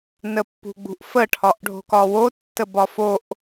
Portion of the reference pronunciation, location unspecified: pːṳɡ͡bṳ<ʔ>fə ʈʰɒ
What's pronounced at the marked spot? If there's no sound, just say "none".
ʔ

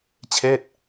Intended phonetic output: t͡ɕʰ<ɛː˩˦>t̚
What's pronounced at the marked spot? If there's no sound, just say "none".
ɛː˥˩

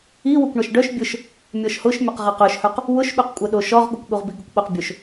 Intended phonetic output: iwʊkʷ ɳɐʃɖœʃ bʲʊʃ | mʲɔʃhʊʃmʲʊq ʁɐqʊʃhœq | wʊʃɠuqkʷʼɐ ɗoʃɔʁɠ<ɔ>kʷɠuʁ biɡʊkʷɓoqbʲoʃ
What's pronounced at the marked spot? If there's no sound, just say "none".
ʊ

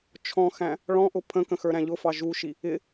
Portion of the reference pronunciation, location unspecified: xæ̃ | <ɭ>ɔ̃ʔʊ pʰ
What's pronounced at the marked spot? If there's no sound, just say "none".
ɭ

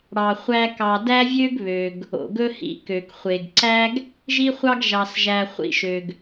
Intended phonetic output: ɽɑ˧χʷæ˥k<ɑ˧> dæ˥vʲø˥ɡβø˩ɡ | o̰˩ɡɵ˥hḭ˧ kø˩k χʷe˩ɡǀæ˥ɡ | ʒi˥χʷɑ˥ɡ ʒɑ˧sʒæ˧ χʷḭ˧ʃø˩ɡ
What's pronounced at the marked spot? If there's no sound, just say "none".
ɑ˧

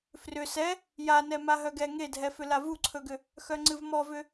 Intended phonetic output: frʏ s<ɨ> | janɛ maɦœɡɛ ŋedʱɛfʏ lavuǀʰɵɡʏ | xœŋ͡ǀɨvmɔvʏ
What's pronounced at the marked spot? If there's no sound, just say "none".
ɛ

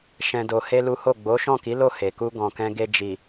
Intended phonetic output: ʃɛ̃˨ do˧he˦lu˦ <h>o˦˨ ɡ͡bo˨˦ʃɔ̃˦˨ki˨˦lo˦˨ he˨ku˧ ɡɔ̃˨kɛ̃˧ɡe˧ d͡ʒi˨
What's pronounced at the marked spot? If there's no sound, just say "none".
h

